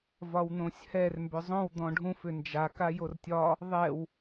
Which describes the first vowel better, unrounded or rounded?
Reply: rounded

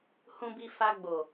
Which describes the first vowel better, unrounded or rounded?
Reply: rounded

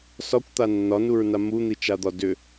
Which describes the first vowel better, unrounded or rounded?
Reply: rounded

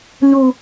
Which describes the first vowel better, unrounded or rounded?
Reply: rounded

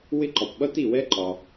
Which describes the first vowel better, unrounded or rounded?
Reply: unrounded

